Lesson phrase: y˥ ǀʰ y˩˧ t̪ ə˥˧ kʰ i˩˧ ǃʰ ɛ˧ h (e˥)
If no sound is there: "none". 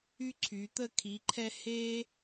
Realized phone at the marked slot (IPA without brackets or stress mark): e˥